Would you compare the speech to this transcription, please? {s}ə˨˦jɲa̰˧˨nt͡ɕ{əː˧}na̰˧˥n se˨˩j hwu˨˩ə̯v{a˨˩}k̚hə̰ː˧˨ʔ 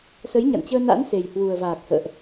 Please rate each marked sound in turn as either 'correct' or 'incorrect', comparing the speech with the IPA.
correct, correct, incorrect

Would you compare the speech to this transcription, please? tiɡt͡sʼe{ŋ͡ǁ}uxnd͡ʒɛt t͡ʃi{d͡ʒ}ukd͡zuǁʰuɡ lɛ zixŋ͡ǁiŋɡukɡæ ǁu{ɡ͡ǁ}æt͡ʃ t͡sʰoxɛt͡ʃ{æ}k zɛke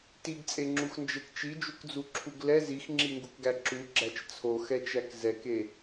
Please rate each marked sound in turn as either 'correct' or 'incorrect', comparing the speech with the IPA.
correct, correct, correct, correct

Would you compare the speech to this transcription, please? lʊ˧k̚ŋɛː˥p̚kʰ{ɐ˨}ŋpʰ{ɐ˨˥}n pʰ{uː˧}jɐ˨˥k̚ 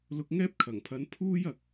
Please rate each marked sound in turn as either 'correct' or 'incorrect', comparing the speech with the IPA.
incorrect, correct, incorrect

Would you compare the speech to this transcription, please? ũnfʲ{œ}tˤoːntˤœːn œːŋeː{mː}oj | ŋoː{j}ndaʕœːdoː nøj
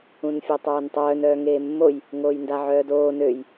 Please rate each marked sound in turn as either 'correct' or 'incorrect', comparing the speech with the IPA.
correct, correct, correct

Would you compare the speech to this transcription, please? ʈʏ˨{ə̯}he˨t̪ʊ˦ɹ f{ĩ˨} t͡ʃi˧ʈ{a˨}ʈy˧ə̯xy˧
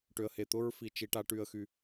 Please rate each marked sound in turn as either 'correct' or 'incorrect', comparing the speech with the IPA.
correct, incorrect, incorrect

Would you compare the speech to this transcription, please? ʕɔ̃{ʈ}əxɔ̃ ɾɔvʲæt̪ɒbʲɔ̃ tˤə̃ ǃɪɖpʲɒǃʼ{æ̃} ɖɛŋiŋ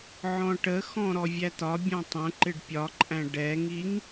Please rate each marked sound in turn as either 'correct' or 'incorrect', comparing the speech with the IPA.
correct, correct

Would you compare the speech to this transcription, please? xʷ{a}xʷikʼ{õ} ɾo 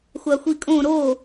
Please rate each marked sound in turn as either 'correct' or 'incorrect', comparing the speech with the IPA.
correct, correct

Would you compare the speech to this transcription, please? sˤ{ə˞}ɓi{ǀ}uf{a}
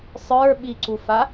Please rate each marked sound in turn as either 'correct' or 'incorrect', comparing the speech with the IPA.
correct, correct, correct

